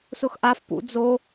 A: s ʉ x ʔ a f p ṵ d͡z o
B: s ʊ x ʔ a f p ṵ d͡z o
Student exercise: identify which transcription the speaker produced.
B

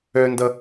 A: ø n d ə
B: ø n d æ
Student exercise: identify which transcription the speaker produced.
A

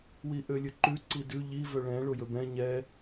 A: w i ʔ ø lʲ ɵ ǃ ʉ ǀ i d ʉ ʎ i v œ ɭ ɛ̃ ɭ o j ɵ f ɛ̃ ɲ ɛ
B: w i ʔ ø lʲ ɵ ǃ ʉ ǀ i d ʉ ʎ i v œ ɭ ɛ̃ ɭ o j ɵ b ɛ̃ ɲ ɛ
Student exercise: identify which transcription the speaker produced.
B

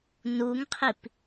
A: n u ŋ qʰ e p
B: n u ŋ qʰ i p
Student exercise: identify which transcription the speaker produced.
B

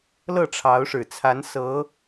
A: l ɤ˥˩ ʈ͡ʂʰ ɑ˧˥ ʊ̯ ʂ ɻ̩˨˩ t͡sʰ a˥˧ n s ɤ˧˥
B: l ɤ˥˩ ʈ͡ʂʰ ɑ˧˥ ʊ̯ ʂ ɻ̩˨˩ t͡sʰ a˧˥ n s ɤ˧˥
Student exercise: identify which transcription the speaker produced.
B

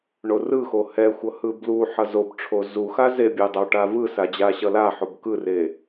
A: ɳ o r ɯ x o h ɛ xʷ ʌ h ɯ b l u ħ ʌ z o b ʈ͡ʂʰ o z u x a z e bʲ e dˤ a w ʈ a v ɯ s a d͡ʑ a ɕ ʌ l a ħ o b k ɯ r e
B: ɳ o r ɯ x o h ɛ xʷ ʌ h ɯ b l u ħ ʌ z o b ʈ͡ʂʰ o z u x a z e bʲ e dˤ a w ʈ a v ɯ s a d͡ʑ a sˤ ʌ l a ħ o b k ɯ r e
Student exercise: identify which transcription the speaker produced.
A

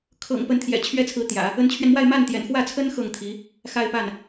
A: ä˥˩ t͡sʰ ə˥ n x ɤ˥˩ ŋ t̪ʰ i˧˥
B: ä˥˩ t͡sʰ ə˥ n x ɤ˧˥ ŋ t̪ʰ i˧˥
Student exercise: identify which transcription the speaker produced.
A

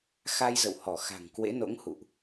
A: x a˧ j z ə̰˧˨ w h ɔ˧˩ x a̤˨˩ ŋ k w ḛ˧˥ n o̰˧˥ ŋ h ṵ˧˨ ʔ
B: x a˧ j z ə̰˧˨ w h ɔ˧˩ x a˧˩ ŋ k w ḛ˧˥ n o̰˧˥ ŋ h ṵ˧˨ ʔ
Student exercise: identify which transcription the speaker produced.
A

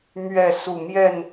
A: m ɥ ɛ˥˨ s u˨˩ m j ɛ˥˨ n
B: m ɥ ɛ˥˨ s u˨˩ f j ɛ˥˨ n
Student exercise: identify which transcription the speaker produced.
A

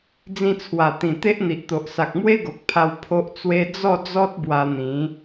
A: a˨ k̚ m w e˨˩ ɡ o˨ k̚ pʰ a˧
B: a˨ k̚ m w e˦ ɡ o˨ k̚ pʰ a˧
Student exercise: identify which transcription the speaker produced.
B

